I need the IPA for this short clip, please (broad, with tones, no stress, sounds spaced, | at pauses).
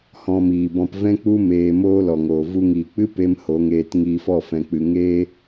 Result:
h ɔ̃˧ m iː˨ b ɔ̃˧ p v ɛ̃˦ k͡p u˦ m eː˧ m oː˦ l ɔ˨ ŋ oː˨ v u˧ ŋ iː˨ k͡p ɨ˦ p e˦ m h o˨˦ ŋ eː˧ t ŋ iː˧ f ɔ˦˨ f ɛ̃˨ k͡p ɨ˨ ŋ eː˦